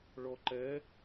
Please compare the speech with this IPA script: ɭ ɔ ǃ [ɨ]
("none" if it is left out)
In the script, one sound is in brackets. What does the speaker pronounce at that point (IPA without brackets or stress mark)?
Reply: ɛ